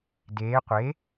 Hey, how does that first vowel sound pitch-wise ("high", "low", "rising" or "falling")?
rising